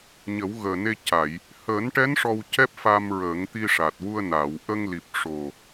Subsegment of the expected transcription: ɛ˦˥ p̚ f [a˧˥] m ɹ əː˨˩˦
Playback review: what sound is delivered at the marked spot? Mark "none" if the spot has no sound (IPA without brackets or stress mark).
a˧